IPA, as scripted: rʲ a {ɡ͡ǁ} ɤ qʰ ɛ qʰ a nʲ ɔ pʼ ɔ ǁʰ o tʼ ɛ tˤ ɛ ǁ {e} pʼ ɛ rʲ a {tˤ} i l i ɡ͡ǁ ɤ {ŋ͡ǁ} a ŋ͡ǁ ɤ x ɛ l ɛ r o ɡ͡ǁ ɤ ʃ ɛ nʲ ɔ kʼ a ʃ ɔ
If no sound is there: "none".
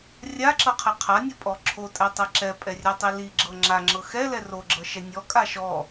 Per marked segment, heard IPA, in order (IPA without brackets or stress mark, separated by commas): ǁ, ɛ, tˤ, ŋ͡ǁ